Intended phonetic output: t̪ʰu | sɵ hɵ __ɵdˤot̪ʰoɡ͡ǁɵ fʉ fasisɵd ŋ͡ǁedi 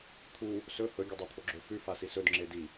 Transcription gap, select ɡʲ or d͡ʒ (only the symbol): ɡʲ